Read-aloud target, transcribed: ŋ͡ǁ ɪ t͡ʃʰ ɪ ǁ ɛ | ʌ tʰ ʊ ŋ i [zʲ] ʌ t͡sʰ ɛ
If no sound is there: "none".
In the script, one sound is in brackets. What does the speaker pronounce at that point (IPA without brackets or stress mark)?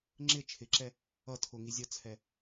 zʲ